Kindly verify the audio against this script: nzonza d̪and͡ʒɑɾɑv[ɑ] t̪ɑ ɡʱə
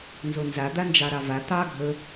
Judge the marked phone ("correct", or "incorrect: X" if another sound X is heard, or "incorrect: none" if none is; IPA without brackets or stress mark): incorrect: a